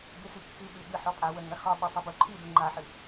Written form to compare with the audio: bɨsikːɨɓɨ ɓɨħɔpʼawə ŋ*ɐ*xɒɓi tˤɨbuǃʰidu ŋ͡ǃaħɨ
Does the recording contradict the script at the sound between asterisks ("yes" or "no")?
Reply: no